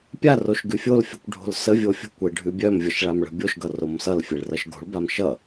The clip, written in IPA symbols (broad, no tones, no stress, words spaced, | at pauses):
pʲa roʃɡʉfʲolfʲʌkʷ ɖʱo̤lsəvʲo fʲo̤kʷe ɖʱʉbʲœmvʲʌʃ ɭamɭə̤bʲoʃɡʌ romsʌlfʲeɭ rʌʃɡo̤ɭbam ʃʌ